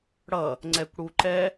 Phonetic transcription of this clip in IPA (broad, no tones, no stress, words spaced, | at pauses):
ɽʌ | ŋ͡ǀɛkʷɽuǃɛ